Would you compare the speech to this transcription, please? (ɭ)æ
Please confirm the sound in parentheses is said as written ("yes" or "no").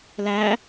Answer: no